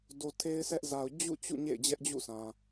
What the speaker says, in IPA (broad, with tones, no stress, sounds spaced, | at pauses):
d o˨ tʰ e˦ ɪ̯ sʰ ɛ˦ ʔ z a˨ ʊ̯ d͡ʑ ṵ˦˨ t͡ɕ ṵ˦˨ ɲ ḛ˦˨ ɪ̯ d͡ʑ ɛ˦ ʔ d͡ʑ ṵ˦˨ s ã˨